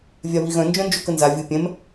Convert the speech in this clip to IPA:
vʲ a β i ɣ œ̃ n d͡ʒ œ̃ n d͡ʒ o k ə n z a vʲ ɯ pʲ ɛ̃ m

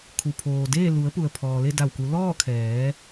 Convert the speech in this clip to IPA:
kʰ u˩ pʰ oː˩ d eː˥˨ l u˩˧ ə̯ p u˩ ə̯ pʰ ɔː˩ l e˥˨ d a˧˩ w k u˩˧ l ɔː˥˨ kʰ ɛː˩˧

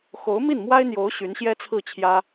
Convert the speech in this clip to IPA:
x o˧˥ ʊ̯ m i˥˩ n m w a˥ ɪ̯ n̪ j o˧˥ ʊ̯ ɕ y˧˥ n ɕ j ɛ˥ t͡sʰ ɹ̩˥˩ t͡ɕʰ j ä˥

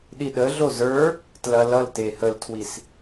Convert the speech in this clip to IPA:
ɗ i ɗ ə ɮ o z ə˞ | t l ɐ l ʌ l t e h ə l tʰ w i s

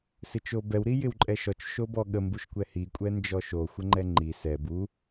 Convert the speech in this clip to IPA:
s ɪ t͡ʃ o b ɛ w ɾ i j ɪ w ǃʼ ɛ ʃ ɔ t͡ʃ ʃ o b ɔ ɠ ə m b u ʃ kʷ ɛ h i kʷʼ ɛ n d͡ʒ ɔ ʃ o xʷ ə ŋ͡ǃ ɛ ŋ͡ǃ i s ɛ b u

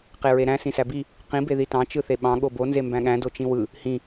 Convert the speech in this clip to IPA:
q e ɹ e ɾ æ̃ s ĩ s æ b i | q ĩ b e ð i t ɑ̃ t͡ʃ ɯ θ e ɓ ɑ̃ ɠ o b o n z e m b æ̃ ɠ æ̃ d o t͡ʃ ĩ w ɯ | h ĩ

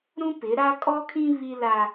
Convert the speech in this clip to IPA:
ɾ ũ˦ p ɪ˨˦ ɾ a˦ kʼ ɔ˦ kʰ ĩ˦ β i˦ l a˦

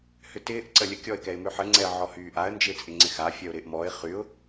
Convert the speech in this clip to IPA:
h ʏ t ɪː ʔ ǀ ə lʲ ə kʲ ɔ ɪ̯ k ɛ ɪ̯ m ʏ ħ ə ŋ͡ǀ ɛ ə̯ ʕ ɔ h yː ʔ a ə̯ n d͡ʒ ɪː t͡sʼ ɪ ŋ͡ǀ ɪ x a fʲ ɜ ʊ̯ ɾ ɪː ʔ m ɔ ɪ̯ χ y ʊ̯

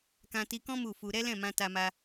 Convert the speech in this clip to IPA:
k ã˧ t i˧ k ɔ̃˦ m u˦˨ f u˧ ɾ ɛ˦ l ɛ̃˦˨ m ã˧ t a˧ m a˧

